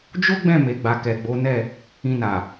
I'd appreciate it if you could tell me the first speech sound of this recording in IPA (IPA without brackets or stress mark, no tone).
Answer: d͡ʒ